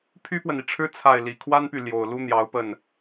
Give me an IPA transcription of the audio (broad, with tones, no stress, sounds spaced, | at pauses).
pʰ y˥ p w ə˨ n i˩ ʈ͡ʂʰ ɻ̩˥ t͡sʰ a˥˩ ɪ̯ l i˨˩ kʰ w a˥ n p y˨ l j o˨˩ ʊ̯ l u˥ n̪ j ɑ˧˥ ʊ̯ p ə˥˩ n